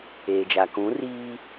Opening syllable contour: low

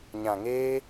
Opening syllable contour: low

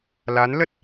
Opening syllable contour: rising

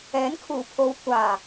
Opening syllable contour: rising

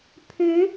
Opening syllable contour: rising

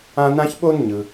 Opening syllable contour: high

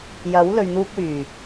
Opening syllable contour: rising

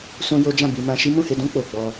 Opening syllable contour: high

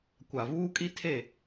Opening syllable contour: low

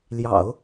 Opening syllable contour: low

